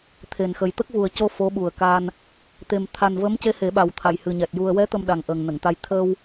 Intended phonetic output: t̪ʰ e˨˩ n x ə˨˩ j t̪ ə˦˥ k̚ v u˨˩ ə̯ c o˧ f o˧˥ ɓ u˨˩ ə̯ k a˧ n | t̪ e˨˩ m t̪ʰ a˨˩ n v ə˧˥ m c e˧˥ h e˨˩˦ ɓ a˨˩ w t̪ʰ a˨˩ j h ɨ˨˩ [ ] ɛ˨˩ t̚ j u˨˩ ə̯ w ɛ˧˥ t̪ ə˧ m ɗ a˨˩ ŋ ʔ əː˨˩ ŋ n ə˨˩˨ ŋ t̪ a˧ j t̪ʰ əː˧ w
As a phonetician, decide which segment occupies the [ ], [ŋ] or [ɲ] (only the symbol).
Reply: ɲ